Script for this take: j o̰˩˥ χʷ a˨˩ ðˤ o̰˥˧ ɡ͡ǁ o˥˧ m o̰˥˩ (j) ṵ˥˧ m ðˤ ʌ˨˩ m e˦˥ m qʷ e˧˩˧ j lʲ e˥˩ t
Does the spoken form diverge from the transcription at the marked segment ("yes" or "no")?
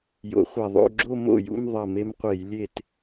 no